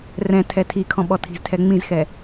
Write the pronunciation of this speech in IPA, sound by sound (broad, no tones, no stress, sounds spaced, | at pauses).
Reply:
r ɛ̃ tʰ ɛ tʰ i kʰ ɔ̃ ɓ ɔ tʰ i̤ z tʰ ɛ ŋ͡m ĩ z x ɛ